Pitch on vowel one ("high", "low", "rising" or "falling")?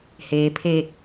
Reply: low